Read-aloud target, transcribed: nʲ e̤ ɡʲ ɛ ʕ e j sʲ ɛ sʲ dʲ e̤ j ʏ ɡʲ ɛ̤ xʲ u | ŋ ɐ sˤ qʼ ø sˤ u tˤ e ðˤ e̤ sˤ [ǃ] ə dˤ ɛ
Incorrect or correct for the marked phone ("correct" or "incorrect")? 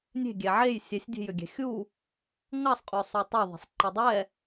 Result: correct